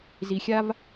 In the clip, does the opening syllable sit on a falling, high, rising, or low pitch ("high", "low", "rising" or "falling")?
low